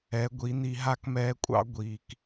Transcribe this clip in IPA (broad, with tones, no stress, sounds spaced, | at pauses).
ɛ˨˦ ɡʷ i˨˦ n̪ i˧ ɦ a˦ k m ɛː˧ kʷʼ ɑ̰˦ ɡʷ iː˨ k